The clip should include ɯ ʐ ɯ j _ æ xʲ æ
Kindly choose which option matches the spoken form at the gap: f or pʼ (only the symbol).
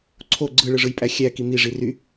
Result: pʼ